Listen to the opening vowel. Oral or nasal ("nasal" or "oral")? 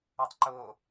oral